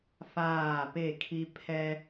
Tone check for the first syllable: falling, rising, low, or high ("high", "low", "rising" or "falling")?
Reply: falling